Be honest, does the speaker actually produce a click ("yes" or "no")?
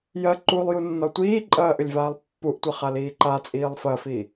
yes